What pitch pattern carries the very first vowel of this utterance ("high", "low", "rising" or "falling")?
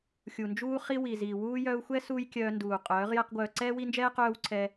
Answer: low